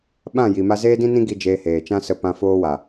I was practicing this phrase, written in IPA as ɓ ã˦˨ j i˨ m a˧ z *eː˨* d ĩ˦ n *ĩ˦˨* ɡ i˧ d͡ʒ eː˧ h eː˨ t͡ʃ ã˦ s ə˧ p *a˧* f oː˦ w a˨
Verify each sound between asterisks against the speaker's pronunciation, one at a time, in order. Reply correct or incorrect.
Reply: incorrect: eː˦, incorrect: ĩ˦, incorrect: ã˧

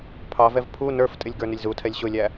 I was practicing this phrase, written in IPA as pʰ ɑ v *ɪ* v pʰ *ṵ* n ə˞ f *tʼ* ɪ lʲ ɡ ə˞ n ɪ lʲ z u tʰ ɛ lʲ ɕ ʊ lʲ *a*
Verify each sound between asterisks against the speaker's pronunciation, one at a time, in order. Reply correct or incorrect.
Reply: incorrect: ɛ, incorrect: u, correct, incorrect: æ

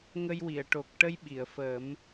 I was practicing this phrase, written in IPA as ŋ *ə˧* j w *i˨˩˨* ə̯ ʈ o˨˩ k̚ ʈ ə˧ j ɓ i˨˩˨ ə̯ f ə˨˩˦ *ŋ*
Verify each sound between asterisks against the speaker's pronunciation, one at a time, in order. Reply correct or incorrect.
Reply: correct, correct, incorrect: m

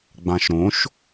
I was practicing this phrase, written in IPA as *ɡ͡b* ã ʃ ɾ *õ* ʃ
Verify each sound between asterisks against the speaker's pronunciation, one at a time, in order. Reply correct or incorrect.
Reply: correct, correct

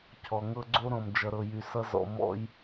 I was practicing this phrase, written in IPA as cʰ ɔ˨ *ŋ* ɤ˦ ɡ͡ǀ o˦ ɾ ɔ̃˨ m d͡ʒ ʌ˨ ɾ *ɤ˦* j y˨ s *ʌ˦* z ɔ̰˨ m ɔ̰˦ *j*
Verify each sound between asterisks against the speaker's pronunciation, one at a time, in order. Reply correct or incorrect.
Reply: correct, incorrect: ɤ˨, correct, correct

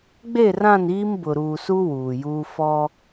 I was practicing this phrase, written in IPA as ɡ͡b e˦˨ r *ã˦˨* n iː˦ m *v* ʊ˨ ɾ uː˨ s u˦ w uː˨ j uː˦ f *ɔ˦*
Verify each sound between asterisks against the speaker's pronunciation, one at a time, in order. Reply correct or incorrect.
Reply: correct, incorrect: b, correct

